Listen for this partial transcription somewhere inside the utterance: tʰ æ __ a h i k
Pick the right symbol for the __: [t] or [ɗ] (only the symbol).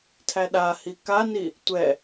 ɗ